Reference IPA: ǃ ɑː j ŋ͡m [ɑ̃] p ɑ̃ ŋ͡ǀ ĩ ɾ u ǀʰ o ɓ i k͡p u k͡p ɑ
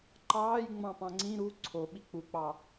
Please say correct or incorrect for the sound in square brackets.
correct